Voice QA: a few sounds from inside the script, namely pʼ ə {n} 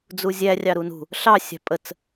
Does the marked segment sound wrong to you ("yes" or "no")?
yes